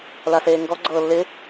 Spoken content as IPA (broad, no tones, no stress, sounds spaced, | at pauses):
l a s eː ŋ ɡ ɔ ɡ͡ǀ ɤː lː ɪ